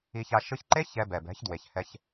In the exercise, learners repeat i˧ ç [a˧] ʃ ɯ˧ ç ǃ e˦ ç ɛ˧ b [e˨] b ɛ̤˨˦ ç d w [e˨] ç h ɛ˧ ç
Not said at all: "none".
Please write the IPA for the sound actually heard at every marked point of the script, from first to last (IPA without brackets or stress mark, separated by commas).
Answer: a˧, ɛ˨, e˨